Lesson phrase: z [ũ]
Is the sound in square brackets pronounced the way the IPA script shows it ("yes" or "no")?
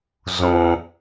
yes